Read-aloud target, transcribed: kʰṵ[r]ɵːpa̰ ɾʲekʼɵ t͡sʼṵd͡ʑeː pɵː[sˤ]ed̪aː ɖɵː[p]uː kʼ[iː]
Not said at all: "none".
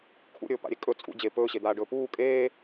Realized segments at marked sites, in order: ɾʲ, ɕ, p, eː

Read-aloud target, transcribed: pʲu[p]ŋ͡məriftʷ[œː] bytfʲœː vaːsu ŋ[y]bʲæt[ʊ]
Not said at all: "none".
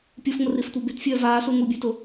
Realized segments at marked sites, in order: f, œ, u, ʊ

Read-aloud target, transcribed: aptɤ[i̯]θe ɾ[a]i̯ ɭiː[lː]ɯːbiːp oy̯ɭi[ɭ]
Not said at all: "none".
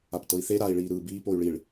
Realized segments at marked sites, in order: i̯, a, ɾ, ɭ

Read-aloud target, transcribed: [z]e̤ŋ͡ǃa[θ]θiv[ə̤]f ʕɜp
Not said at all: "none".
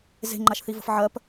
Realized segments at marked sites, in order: z, ʃ, ə̤

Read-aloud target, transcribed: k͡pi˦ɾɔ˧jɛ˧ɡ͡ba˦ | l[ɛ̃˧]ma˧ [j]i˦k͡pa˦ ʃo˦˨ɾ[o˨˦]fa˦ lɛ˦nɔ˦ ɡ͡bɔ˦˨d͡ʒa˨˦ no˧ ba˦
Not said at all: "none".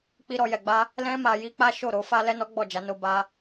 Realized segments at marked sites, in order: ɛ̃˦, j, o˨˦

